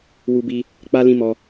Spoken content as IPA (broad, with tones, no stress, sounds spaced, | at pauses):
w u˦ b i˦ | k͡p a˦ l ĩ˦ m ɔ˧